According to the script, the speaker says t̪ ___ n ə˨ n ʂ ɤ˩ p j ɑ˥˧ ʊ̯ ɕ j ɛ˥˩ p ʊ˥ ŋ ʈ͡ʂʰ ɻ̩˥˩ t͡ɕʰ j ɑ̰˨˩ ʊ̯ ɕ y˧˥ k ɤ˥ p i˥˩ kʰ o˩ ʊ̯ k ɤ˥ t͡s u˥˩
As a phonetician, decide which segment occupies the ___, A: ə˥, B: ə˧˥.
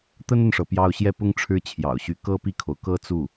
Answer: A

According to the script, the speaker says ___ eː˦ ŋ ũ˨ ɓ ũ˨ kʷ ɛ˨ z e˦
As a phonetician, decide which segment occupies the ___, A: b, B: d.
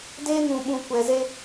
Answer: B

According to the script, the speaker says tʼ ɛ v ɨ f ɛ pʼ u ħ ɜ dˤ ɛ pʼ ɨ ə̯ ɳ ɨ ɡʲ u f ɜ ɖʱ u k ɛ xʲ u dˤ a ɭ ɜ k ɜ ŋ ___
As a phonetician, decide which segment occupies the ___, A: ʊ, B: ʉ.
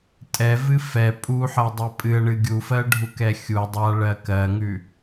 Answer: B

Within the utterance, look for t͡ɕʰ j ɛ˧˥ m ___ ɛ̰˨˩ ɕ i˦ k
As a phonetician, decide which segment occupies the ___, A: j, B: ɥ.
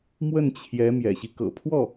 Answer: A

